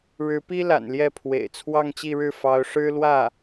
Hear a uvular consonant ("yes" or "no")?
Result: no